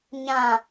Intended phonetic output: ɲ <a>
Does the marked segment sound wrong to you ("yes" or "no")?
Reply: yes